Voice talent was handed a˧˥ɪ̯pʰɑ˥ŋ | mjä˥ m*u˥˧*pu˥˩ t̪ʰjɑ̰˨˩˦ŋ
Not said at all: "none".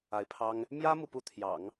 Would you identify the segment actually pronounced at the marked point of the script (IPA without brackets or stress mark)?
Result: u˥˧